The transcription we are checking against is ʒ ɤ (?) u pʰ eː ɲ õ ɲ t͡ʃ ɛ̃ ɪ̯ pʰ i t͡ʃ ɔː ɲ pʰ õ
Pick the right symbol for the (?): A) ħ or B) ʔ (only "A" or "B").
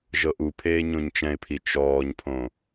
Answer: B